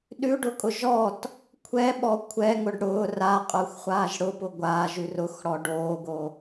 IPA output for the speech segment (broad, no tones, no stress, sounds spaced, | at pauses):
ɗ ʉ ɖ ʊ kʼ ʊ ʒ ɔ t | kʷʰ ɛ ɓ ɔ kʷʰ ɛ ŋ ʊ ɖ ɽ ʊː r a qʼ ʊː xʷ χʷ aː ʒ ɽ ʊ p ʊ ɡʷ aː ʒ ʉ r ʊ x ɽ ɔ ɖ oː ɡ o